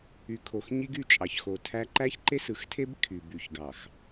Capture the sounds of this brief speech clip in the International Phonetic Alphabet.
y˨ kʰ o˨ x ɲ i˦ ɡ y˦˨ t͡ʃʼ ɑ˨ ç x o˨ tʰ æ˦ ǃ æ˦ ç ǃ e˦ s ɯ˨ x tʰ e˦ b kʰ y˨ b y˨ ç ɡ ɑ˨ x

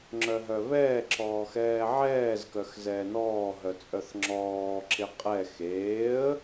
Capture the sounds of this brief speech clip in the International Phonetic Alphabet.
ŋ͡ǁ œ ɦ œ β ɛː ǁ ɔː x ɛː ʕ ɛː z k œ x z ɛː n ɔː ɦ œ t͡sʼ œ θ ŋ͡ǁ ɔː ǁ ɪ qʼ ɛ x eː ə̯

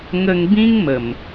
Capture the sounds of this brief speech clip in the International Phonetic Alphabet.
ŋ ə˧ ŋ b ĩ˦ ŋ m ə˨˩ m

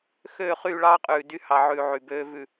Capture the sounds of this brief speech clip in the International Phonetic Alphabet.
x øː˦˨ χ yː˦˨ ɭ ɑː˦ qʼ ʉː˨ d y˧ h ɑ˨ ʕ ʉː˨ ʕ y˨ b øː˦ v ʉ˦˨

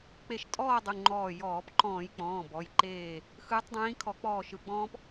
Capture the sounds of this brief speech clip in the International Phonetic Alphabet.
k͡p e˧˩ ʃ tʼ ɔː˥˨ dˤ u˩˧˩ ŋ͡ǃ ɔː˧˩ j ɔː˧˩˧ p ǃ ɔ̃ː˧˩˧ j k͡p ɔ̃ː˩˧˩ b ɔ˩˧˩ j ǃ eː˧˩ | x ɯː˨˦ tˤ dˤ ĩː˨˦ kʰ ɔ˧˩˧ k͡p ɔː˧˩ ʃ ɯ˧˩˧ ɡ͡b ɔ̃ː˦ p

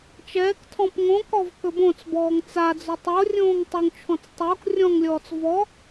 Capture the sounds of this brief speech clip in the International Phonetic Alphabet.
t͡ʃ ɛː k tʰ ɔ̃ p ŋ õ k ɔ v k ɵ b õ t͡s b ɔː ŋ t͡s a d͡z ɵ tˤ o rʲ õː ŋ tˤ ɵ ŋ t͡ʃʰ ɔ̃ t͡s tˤ o k rʲ ɔ̃ ŋ lʲ ɔː t͡s v ɔ

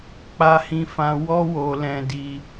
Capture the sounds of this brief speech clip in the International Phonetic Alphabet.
k͡p a˧ h ĩ˧ f ã˧ w ɔ˦ w o˧ l ɛ̃˧ d i˧

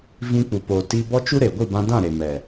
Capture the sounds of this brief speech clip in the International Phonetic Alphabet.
v ĩ˧ k͡p u˨ p oː˨ t i˧ b ɔ˦ t͡ʃ u˦ ɾ e˨ ɡʷ i˦˨ b ã˧ d ã˦˨ ɾ e˨ m ɛ˨

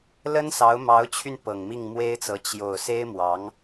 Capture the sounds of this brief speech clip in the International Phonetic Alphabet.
l ə˥ n s ɑ˧˥ ʊ̯ m ɑ˧˥ ʊ̯ t͡ɕʰ y˧ n p ɤ˨˩ ŋ m i˥˩ ŋ m w e˥ ɪ̯ t͡s ɤ˧˥ t͡ɕ j o˨˩ ʊ̯ s e˥ ɪ̯ m w ɑ˧˥ ŋ

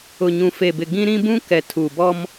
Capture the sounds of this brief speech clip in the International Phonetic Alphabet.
ʊ˨ ɲ ũ˨ f e˨ b ɪ˨ ɡ ĩ˦ ɾ ĩ˦ b ũ˦ k ɛ˨ tʰ u˨ b ɔ˦ m

